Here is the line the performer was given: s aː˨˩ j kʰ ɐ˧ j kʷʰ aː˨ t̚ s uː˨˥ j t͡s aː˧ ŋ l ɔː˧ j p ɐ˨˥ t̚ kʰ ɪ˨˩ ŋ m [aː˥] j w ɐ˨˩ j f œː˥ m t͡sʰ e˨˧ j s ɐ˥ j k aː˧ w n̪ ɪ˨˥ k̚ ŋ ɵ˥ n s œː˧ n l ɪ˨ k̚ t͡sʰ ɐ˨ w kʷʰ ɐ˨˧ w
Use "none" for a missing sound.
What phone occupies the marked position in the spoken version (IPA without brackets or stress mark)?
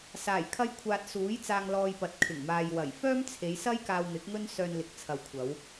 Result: aː˨